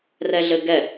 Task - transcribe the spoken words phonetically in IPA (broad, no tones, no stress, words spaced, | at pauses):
rɛɮɘɡɛ